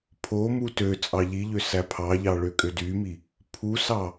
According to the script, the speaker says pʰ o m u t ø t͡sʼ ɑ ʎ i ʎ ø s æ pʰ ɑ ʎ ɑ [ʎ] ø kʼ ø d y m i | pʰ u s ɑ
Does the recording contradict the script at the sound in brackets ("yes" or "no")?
yes